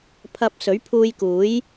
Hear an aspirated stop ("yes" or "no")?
yes